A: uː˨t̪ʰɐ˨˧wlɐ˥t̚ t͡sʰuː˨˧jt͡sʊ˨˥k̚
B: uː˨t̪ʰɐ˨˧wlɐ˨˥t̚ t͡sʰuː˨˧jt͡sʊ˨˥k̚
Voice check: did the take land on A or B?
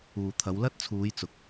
A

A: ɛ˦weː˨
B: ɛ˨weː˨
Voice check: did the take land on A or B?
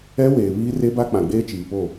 A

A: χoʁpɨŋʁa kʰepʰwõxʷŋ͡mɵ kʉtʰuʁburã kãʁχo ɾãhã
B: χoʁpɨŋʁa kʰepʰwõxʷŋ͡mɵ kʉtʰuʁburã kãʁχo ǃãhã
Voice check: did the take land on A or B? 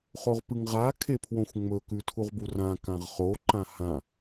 B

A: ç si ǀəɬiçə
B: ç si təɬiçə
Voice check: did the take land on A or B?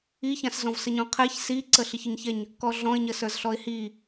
A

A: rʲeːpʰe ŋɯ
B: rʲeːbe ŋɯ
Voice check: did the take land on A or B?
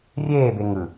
B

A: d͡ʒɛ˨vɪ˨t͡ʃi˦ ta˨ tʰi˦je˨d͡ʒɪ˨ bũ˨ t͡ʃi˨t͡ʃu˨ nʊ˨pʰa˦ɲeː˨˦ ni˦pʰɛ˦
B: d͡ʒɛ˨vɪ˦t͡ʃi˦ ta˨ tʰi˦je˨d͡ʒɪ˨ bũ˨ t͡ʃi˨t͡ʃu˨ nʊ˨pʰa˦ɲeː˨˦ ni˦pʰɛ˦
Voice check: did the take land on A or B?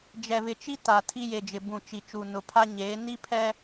A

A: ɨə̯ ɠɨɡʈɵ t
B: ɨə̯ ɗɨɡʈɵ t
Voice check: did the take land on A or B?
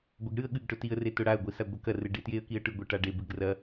A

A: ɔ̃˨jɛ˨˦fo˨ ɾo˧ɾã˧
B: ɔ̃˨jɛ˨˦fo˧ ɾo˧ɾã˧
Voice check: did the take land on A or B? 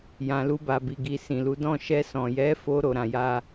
B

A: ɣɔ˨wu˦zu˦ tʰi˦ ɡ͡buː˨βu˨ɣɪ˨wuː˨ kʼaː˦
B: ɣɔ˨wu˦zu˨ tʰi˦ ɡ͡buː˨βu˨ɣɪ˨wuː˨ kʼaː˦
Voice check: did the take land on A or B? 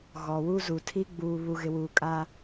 B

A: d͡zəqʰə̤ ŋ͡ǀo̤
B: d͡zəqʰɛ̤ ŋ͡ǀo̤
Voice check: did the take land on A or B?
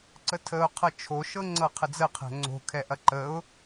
B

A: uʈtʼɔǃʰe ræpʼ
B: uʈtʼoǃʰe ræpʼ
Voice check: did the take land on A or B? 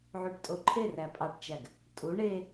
B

